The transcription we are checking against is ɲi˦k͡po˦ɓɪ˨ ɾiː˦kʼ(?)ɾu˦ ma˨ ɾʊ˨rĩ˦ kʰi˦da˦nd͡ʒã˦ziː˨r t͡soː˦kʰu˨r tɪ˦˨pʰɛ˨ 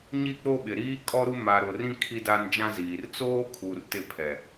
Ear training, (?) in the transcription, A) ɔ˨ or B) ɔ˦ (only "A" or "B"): B